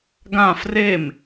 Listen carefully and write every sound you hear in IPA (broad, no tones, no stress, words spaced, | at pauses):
ɡã frem